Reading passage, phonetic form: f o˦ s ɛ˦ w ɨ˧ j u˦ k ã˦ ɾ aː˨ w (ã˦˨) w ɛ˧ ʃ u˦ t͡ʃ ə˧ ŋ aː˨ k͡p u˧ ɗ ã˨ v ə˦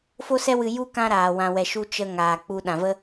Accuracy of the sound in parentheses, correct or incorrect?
incorrect